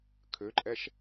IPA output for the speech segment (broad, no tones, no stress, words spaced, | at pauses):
kʰøǃʼɛʃ